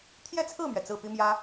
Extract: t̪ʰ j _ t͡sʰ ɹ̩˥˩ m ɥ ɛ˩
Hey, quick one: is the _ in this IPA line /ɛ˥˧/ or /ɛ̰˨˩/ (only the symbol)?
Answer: ɛ˥˧